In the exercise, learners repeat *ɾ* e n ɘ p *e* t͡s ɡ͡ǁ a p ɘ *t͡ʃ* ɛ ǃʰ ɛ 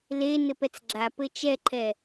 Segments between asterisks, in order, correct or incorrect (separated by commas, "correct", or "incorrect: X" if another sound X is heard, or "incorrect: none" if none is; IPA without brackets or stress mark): incorrect: l, incorrect: ɛ, correct